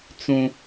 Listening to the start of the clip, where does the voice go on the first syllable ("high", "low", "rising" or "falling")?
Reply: high